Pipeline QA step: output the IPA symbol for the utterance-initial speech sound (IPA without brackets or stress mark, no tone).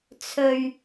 t͡sʰ